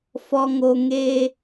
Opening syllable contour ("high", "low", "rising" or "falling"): low